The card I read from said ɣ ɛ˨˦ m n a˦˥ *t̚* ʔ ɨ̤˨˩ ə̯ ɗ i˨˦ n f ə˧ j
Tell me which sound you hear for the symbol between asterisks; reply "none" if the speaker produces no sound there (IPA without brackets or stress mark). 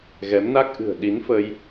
k̚